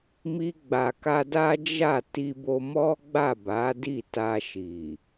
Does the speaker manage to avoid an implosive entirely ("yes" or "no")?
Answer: yes